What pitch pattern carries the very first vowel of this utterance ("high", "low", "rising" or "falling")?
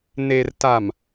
low